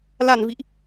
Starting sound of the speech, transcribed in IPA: l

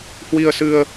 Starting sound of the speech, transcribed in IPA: h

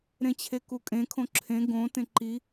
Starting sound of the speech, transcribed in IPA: ɾ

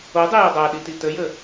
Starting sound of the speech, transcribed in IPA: o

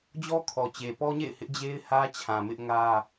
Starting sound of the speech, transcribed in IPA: d͡ʑ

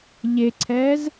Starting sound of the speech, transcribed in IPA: ʎ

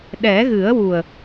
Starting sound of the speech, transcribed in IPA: ɗ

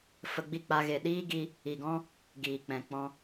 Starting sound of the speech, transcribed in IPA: f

